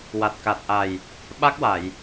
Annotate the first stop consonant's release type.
plain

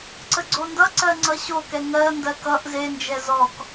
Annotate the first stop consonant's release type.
click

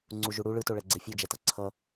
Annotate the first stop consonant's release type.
click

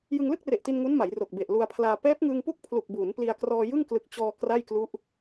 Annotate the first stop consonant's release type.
plain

